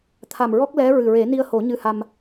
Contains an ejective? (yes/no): no